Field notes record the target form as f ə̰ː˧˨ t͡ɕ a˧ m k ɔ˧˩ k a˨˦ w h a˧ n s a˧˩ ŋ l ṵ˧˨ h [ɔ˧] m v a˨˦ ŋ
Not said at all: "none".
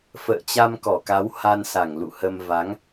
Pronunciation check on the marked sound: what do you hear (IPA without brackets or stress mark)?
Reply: ə˧